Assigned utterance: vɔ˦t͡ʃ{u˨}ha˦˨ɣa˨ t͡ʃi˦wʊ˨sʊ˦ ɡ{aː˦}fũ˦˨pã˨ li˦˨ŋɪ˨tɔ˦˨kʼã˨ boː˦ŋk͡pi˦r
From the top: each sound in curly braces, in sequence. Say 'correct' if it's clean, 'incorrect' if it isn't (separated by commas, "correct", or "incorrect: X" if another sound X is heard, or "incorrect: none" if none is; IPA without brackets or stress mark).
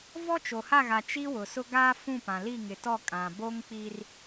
incorrect: o˨, correct